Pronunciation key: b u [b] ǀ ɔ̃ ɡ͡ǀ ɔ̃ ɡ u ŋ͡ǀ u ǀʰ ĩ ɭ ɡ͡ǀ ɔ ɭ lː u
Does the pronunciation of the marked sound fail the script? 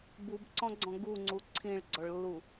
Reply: no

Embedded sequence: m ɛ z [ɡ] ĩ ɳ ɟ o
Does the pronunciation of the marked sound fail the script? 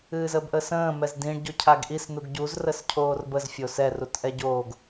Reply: yes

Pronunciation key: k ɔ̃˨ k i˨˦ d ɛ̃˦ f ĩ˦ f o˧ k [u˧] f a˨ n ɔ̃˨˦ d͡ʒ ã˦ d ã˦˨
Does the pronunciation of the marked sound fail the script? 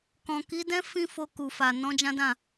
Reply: yes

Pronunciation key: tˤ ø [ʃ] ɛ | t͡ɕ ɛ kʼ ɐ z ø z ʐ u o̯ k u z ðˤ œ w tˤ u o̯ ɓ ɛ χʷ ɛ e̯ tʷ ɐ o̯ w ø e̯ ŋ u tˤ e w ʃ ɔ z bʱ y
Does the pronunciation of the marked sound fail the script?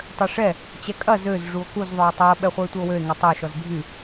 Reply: yes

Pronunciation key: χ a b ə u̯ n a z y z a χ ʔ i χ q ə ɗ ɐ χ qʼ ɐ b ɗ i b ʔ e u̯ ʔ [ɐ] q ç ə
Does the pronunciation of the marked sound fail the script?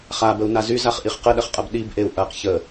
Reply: no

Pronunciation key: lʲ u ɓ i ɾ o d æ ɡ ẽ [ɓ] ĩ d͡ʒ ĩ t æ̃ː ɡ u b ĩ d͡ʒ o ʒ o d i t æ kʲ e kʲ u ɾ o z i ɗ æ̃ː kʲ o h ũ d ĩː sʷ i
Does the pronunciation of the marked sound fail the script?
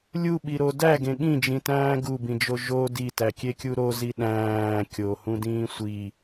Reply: yes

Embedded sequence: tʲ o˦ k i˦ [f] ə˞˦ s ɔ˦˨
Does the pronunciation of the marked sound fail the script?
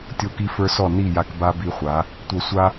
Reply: no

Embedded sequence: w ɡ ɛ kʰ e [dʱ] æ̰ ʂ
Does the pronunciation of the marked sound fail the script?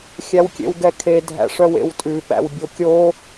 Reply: no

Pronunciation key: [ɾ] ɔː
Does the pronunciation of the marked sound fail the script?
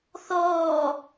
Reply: yes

